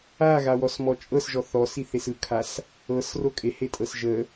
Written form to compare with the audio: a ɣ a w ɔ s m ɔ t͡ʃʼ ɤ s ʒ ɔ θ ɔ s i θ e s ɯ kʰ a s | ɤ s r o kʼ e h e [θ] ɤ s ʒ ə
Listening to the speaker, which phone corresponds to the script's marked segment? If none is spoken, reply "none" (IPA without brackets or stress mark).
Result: tʼ